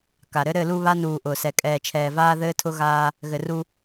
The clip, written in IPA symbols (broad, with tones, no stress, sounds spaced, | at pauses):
k a˨ ɾ ɘ˦ ɾ ɘ˦˨ l u˦ β a˦ n uː˨ ʔ ʊː˨ s ɛ˨ kʼ ɛː˨ t͡ʃʰ ɛː˨ v aː˦ ð ɘː˦ tʰ ʊ˦ ɣ aː˦ | ɣ ɘ˨ r u˦